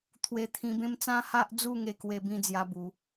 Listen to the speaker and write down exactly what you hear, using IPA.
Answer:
t̪ʰwe˧ t̪ʰĩ˧bẽ˦m t͡sã˦ha˦ʔ d͡zu˥˧ŋe˧kwe˧bĩ˧ d͡zja˦bu˨˦

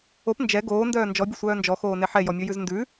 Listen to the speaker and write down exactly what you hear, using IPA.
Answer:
op nd͡ʒɛ ɡoːndœː nd͡ʒɔbʲʊsʷœː nd͡ʒɔxoːne ħɛjɔmʲojʉz ndʉ

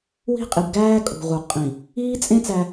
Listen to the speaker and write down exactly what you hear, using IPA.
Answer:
wi̤˦qʼi˨b ɡæː˦ kʼṳ˨ʁu˨ qʼĩ˨ | iː˦t͡sʼẽ˦ t͡sæ˦

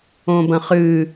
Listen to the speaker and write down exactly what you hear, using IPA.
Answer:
õbɐ̃χɨ

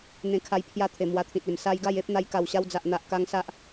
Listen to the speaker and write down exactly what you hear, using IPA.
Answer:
n̪ẽ˧kʰa˧j pʰja˦t̪ʰe˨˩ mwa˧t̪ʰĩ˨t̚e˨˩m sa˦j ɡa˥˧je˦p̚n̪a˧jka˨˩w ɕa˧wd͡za˨ʔn̪a˨ʔka˧ŋ sa˦ʔ

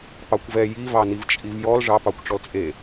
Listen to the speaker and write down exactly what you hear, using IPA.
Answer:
pɑkʷvɛ jivɑ nivt͡ʃʼivjɔl ʐɑpɑkʷ ʈ͡ʂɔlt͡sʼe

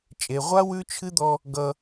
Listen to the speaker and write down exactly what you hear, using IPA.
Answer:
t͡ʃʼe˨ʁʷa˦ wʉ˦t͡ʃʰɨ˦d̪ɔ˦ | ɡʌ˦

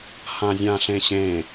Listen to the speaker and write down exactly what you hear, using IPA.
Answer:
hãzʲãɬẽɕẽ

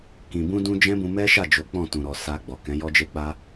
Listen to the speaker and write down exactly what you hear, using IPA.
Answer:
kĩ˨ bũ˧dũ˧ d͡ʒɛ̃˦bũ˧mɛ˦ʃa˦˨ d͡ʒo˨˦k͡pɔ̃˦˨tũ˨ɾɔ˨ sa˧ɡ͡bɔ˨kɛ̃˨˦ jɔ˧d͡ʒe˧k͡pa˧

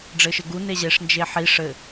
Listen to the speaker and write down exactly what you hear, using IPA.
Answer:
ɖ͡ʐɘʃɘɡu neʑeʂ nd͡ʒeħi ʂɘ

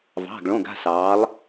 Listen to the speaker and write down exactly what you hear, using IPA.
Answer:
vɑ̤˩˧˩ɡɭõ˩˧˩ɡa̤˩˧˩sɑː˩˧lˠ

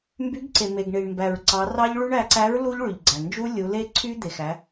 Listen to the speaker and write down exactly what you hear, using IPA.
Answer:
mby˨˥ɡǀe˩ me˩ɡɳi˩ɳmbæ˩ɹ ǀɑ˩˧rɑ˦˥ʎɭy˦˥ɳ æ˩˧ǀæ˨˥ɹ lu˦˥ʎɭy˩ʎɡ͡ǀæ˩ nd͡ʒu˦˥lʲu˩˧ le˦˥ǀʰy˦˥ d̪e˩xæ˩˧

